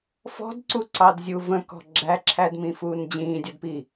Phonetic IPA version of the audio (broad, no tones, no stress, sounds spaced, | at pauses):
f ɔ̤ d ǀ u ǀ ɑ d zʲ u v ə̃ k ɔ̤ ɡ͡ǁ æ ǁʰ æ d m ĩ f uː n d͡ʑ ĩː dʲ ʌ d p i